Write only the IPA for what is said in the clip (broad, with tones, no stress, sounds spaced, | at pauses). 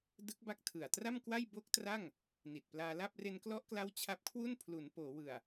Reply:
d ɯ˦˥ k̚ b a˦˥ k̚ tʰ ɯ˨˩ a̯ t r a˥˩ m k w a˥˩ j b o˦˥ k̚ t r a˥˩ ŋ | n i˨˩ t̚ p l aː˧ l a˥˩ p̚ r e˧ n k l ɔ˦˥ ʔ k l a˦˥ w t͡ɕʰ a˦˥ p̚ kʰ w u˥˩ n pʰ l u˩˦ n p oː˩˦ w ɯ˨˩ a̯